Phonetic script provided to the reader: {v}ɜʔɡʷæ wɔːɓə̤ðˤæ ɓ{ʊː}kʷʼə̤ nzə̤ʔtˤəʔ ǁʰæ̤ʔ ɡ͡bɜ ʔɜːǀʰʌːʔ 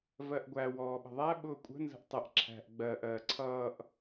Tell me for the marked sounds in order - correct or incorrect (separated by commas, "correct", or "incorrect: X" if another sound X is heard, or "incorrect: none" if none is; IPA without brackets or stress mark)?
correct, correct